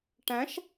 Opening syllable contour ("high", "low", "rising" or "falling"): rising